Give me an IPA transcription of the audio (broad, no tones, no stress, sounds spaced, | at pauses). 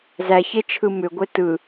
z æ ç e t͡ʃʰ ɯ m ʏ ɡʷ e t ɯ